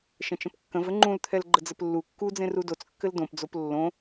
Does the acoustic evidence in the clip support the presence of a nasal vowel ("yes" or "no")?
yes